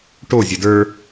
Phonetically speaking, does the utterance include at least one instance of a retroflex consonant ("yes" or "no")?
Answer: yes